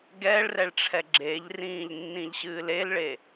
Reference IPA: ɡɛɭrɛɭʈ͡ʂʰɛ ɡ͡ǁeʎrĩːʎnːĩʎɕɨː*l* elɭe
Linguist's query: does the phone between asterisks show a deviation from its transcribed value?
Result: no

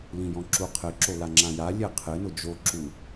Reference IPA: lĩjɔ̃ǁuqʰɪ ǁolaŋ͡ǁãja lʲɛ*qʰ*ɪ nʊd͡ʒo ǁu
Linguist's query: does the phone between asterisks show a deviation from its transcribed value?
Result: no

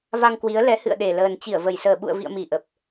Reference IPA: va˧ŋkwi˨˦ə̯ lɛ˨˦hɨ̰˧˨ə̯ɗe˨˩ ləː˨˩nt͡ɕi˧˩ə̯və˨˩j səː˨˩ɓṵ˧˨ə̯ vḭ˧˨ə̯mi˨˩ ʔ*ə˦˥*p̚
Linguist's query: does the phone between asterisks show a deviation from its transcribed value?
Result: yes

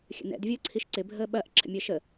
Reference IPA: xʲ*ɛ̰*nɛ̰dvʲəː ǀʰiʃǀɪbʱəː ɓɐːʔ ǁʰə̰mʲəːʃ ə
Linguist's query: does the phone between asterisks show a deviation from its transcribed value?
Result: yes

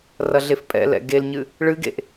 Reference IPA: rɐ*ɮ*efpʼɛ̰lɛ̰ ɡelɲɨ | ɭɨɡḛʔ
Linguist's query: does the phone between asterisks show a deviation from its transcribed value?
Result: no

